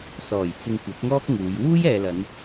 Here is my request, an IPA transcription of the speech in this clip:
s ɔː˨˩ j t͡s ɪ˧ ŋ kʷ ɐ˨˥ p̚ ŋ ɔː˥ k̚ ŋ uː˨˧ j w uː˥ j ɛː˨ l ɐ˨˧ n

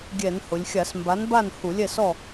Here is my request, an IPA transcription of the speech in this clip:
ɡʲ ɛ˧˩˧ n h ʊ˩˧ lʲ xʲ a˧˩˧ s m b a˨˥ n b a˥˨ n h u˧˩˧ lʲ ɛ˥˨ s ɔ˥˨

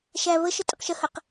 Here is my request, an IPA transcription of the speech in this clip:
ʃ æ β ə ʃ ə tʼ ɪ q ʃ ə h ə q

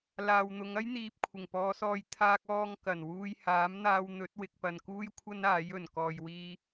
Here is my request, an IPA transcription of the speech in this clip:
l aː˨ w n̪ ʊ˨˧ ŋ ɐ˥ j n̪ iː˨ p̚ kʷʰ ɪ˨˩ ŋ p ɔː˨˧ s ɔː˧ j t̪ʰ aː˧ k̚ ɔː˧ ŋ k ɐ˨˩ n w uː˧ j h aː˨˥ m n̪ aː˧ w n̪ ɵ˨˥ t̚ w ɪ˨ k̚ p ɐ˨ n k uː˥ j kʷʰ ɐ˥ n aː˨˥ j ɵ˨˩ n k ɔː˨ j w iː˧

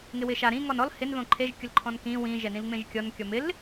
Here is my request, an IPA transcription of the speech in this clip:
ŋ ɪ w ɪ ʃ a ɾ ĩ ŋ ɔ n ɔ l h ɪ n ð õ ǃʰ e ʒ kʲ ʊ l ǃʰ ɔ̃ n k ĩ w ĩ ʒ ɛ n ĩ l ŋ͡m ẽ ʒ kʲ ɔ n kʲ ɔ m ɪ l

